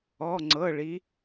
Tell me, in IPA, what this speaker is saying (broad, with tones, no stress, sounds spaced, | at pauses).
ɔ˩˧˩ ŋ͡ǀ ɤ˩˧˩ ɭ i˩˧